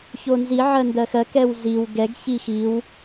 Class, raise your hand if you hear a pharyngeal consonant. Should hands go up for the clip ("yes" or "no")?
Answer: yes